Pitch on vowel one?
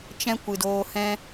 high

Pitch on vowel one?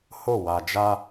falling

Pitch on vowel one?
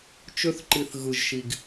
high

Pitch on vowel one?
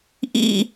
high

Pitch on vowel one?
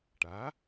rising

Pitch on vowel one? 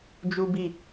high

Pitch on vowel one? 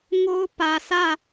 high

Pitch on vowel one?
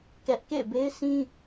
high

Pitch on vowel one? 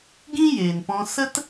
high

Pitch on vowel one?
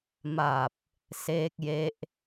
low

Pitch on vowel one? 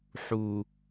low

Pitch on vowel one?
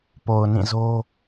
low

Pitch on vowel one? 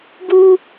high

